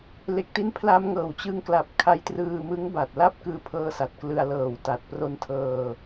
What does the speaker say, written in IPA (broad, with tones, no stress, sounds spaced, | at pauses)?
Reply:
l e˨˩ k̚ t i˧ n pʰ l a˧ m ŋ ɤː˨˩ w t͡ɕ ɯ˧ ŋ k l a˨˩ p̚ kʰ a˧ j t r ɯː˧ m ɯ˦˥ ŋ b a˨˩ t̚ l a˥˩ p̚ k ɯː˧ pʰ ɤː˧ s a˨˩ t̚ k l ɯ˧ a̯ l ɤː˨˩ w t a˨˩ t̚ p r o˧ n tʰ ɤː˧